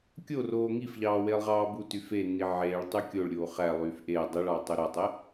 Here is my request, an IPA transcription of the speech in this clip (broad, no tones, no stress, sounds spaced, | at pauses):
kʲ o r oː ŋ i f ʎ ɑː w eː lˠ ʁ ɑː b u t y f e nː i ʕ eː ɭ tˤ y kʲ o ɭ ɾʲ oː χ æ lˠ yː f ʔ e dˤ i ɭ ɑ tˤ ø ɾ o tˤ e